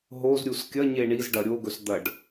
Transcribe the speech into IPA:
ɦ o z ɾʲ u s kʲ ɐ ɲ e ɳ i z ɖ ɐ ɾʲ o ɡ ɵ s d̪ ɐ ɖ

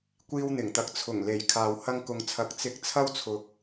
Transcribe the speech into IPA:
kʷ iː˧ w n̪ ɪ˨˩ ŋ t̪ ɐ˨ k̚ t͡sʰ ʊ˨˩ ŋ l e˨˩ j kʰ aː˨ w h ɐ˧ ŋ k ʊ˨ ŋ t͡sʰ ɐ˨˥ k̚ t͡s ɪ˧ k̚ t͡sʰ ɐ˥ w t͡sʰ ʊ˧ k̚

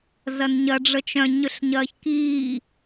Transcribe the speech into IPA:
z ɐ n ɲ ɐ ɖ͡ʐ ə t͡ʃ œ̃ ɲ ʏ ɬ ɲ ɐː ç k iː

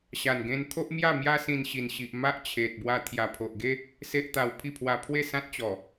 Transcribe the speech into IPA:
ɕ a˨˩ n ɡ ẽ˧ n t̪ʰ o˦ ʔ m j a˥˧ m j a˦ s ĩ˧ n ɕ i˨˩ n ɕ i˨ ʔ m a˦ ʔ t͡ɕʰ e˨ t̚ b w a˧ t̪ʰ j a˨˩ pʰ o˨ ʔ ɡ e˦ | s e˦ ʔ t̪ a˧ w pʰ i˥˧ pʰ w a˧ pʰ w e˥˧ s ã˦ t̚ t͡ɕ ɔ˨˩

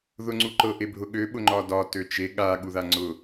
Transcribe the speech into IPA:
ð ʊ ŋ͡ǀ u ǃ ɤ ʔ e bʱ ʊ ɠ ø ɓ ʊ ŋ͡ǃ ɒ d ɒ t ø t͡ʃ e ɠ a ɠ u ð a ŋ͡ǀ ʊ

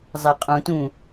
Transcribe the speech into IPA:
zˤ æ qʼ ũ t ũ

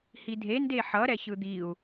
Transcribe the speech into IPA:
h i dʱ e n d e ħ ʌ ɾ ɛ ç ɯ d̪ i u̯

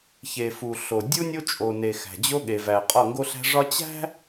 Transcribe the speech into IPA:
ç e˨ f u˨ ɬ o˨ dʲ u˦ nʲ o˦ t͡ʃʼ o˨ n e˨ x æ̤˨ d͡ʑ o˦ ɠ e˨ v æ˨ qʼ ɒ˦˨ ŋ ɡ o˦ ɬ æ̤˦ ʐ ɒ˦ t͡ɕ æ̤˦

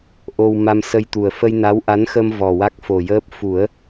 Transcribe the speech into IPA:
ʔ o˧ w m a˧ m s ə˧ j t̪ u˨˩ ə̯ f ə˧ j n a˧˥ w ʔ a˧˥ n x ə˧ m v ɔ˨˩ w a˦˥ k̚ f o˨˩ j əː˦˥ p̚ f u˨˩˦ ə̯

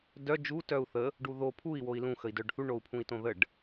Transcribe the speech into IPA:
d œ d͡ʒ u t œ u̯ θ ə | ɖ u ð o pʰ u i̯ w o i̯ l ũ x ə i̯ d œ ɖ θ u ɳ o u̯ pʰ ũ i̯ t õ ð ə ɖ

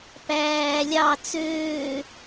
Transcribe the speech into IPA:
p æː lʲ ɑ t͡s øː

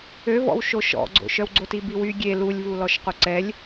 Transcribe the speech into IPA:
ø v ɔ̰ w ʃ o ʃ ɔ̰ ɡ͡ǀ o̰ ʃ œ w ɡ͡ǀ o t i b i w y ɡʲ e l u lʲ v u l ɔ ʃ q o ǀ ɛ lʲ

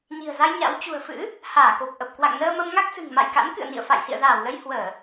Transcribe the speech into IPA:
ɲ i̤˨˩ ə̯ z a˧ j ɲ a̰˧˥ w t͡ɕ ṳ˨˩ ə̯ f ɨ̰˧˥ | h aː˧˩ k o˨˩ p̚ ʔ ə˨˩ p̚ k w a̰˧˨ ŋ n əː˧ m ə˧ m ŋ a˦˥ k̚ s ɨ̤˨˩ ŋ m a̰˧˨ j k a̰˧˥ n k ɨ̰˧˨ ə̯ n ḭ˧˨ ə̯ f a̰˧˨ j s ḭ˧˨ ə̯ z aː˧˩ w l ə˧ j h w əː˧˩˨

